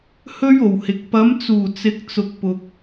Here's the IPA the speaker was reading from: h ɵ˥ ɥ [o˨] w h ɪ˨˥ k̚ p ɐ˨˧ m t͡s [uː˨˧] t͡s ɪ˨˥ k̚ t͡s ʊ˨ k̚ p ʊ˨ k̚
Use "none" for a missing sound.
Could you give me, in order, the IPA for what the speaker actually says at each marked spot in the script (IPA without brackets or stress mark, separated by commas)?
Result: o˨˩, uː˨˩